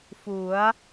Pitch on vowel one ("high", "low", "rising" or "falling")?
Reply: rising